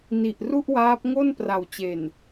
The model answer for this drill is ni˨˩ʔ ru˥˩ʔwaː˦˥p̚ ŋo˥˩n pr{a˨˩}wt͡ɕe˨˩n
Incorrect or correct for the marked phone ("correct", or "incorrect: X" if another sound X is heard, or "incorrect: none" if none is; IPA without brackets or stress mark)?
correct